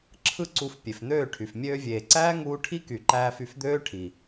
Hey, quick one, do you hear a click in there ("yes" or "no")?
yes